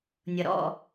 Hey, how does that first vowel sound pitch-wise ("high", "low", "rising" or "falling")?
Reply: low